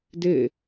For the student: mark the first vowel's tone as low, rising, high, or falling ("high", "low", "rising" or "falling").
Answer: falling